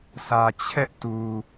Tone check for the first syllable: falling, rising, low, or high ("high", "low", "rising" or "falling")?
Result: low